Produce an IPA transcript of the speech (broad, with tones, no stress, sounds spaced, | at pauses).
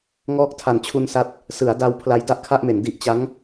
ŋ ɔː˦˥ k̚ tʰ a˨˩ n t͡ɕʰ u˧ n s a˥˩ t̚ | s ɯ˩˦ a̯ d a˧ w pʰ l a˧ j d a˥˩ ʔ kʰ a˥˩ ʔ m e˩˦ n d i˦˥ ʔ t͡ɕ a˦˥ ŋ